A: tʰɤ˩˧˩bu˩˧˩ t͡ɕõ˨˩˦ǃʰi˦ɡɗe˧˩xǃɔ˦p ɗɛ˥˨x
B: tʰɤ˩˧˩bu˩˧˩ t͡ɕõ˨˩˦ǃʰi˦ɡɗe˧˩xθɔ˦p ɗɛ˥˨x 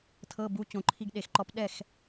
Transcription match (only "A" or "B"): A